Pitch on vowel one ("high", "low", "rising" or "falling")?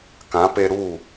rising